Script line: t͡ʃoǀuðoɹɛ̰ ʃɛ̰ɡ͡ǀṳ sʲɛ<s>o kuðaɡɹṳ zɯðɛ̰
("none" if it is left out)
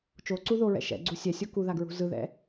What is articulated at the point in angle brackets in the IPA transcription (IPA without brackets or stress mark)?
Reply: sʲ